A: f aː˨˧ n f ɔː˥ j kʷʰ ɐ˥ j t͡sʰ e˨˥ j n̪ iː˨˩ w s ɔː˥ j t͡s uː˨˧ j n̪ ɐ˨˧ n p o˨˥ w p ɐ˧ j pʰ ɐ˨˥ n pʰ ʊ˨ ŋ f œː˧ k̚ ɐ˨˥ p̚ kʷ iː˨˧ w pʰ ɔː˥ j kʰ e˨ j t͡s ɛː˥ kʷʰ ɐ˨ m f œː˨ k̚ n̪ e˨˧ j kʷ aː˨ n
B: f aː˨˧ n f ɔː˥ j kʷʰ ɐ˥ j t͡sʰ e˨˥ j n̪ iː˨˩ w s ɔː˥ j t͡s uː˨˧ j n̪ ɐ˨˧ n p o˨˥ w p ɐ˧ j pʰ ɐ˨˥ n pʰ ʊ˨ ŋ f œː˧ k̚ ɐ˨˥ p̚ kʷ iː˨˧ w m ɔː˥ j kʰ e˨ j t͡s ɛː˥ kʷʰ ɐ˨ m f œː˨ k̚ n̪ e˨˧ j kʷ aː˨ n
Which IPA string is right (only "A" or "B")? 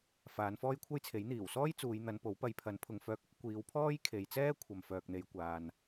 A